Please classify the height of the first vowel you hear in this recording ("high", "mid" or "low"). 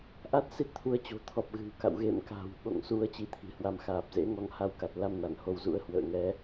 low